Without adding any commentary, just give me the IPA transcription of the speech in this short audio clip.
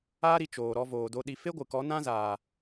aː˦ ɾ i˧ t͡ʃ oː˨ ɾ ɔ˧ v oː˨ d o˧ ɗ i˧ f e˦ ɡʷ ɨ˨ k ɔ˨˦ n ã˦ z aː˨

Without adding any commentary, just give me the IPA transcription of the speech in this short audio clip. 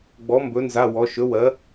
ɡ͡b ɔ˨˥ m b ɵ˨˥ n z a˧˥˧ w ɔ˨˥ ʃ ɵ˨˥ w ɜ˨˥

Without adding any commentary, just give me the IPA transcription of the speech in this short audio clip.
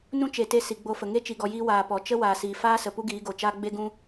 n ũ˦ t͡ʃ e˨ t e˧ s i˨ ɡ͡b o˧ f ə˨ ŋ e˦ t͡ʃ i˨ ɡ ɔ˨ j iː˧ w aː˨ p ɔ˨ t͡ʃ ə˦ w aː˨ s iː˨ f aː˦ s ə˨ p u˦ ɡ iː˨˦ ɡ o˨ t͡ʃ aː˦ ɡ͡b e˦ ɡ ũ˦

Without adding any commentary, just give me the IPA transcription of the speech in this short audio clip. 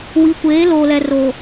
w i˨˦ kʷ eː˨˦ l oː˨ l ɛ˨ r o˨

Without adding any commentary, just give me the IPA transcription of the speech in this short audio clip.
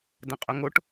d ɐ̃ qʼ ɵ ŋ o ʈ

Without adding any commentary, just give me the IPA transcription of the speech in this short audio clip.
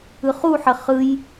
ɯ χ u ħ ə χ ɯ j

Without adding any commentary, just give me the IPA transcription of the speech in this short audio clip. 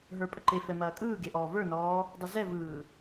ɦ ə˞ pʼ ə ǃ e f ɛ m ɐː kʼ ɯː ɡ e ʔ ɔː v ə˞ n ɔː | dˤ ɯ z ɛ v ɯː

